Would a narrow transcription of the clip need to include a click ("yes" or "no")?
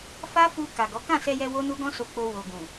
no